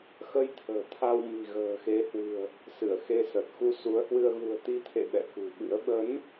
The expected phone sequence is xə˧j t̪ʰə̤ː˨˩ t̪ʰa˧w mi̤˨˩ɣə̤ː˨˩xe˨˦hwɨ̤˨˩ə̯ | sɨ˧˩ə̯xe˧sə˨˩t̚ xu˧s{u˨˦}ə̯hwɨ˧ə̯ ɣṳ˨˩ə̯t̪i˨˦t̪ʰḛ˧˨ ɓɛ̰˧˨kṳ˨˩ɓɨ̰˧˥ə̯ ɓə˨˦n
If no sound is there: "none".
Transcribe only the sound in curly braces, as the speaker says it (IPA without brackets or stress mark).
u˨˦